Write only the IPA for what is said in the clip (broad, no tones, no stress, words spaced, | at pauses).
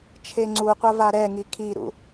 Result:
t͡ʃʰeŋ͡ǀuqʷa vaɾɛŋi kʰiɾṵ